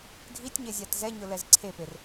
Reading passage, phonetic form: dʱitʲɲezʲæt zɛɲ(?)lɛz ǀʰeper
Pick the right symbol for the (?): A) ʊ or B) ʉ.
A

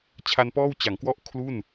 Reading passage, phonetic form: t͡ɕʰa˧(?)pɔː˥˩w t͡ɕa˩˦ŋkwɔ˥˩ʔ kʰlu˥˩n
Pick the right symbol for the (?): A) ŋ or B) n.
B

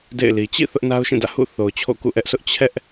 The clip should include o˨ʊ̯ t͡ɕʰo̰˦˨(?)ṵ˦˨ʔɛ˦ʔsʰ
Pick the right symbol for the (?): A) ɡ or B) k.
B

